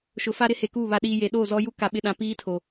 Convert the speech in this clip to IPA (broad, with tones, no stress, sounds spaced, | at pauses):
ʃ ʊ˨˦ f a˦ ɾ ɪ˦ h e˨ k uː˦˨ β a˨ ɗ iː˨ j e˨ ɗ oː˦˨ z ɔ˦ j u˦ k a˨ ɓ ɪ˨ ɗ ã˨ p iː˦ tʰ o˨